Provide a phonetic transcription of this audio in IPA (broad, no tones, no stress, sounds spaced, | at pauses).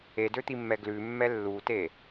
e d ø t̪ i mː ɛ ɡ l ʉ mː ɛ lː u t e